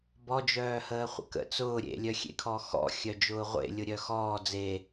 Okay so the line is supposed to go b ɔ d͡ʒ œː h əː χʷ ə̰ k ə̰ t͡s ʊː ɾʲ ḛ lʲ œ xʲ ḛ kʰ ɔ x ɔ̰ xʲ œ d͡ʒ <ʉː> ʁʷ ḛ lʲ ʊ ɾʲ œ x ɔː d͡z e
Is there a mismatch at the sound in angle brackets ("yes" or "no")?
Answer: yes